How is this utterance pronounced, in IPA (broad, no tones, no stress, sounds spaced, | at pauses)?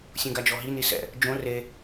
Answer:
sʲ ũ ɡ a d͡ʒ ɔ ɦ i n i s ɛ̰ | d͡ʒ õ r e